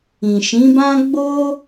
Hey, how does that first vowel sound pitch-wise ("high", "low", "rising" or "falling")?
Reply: low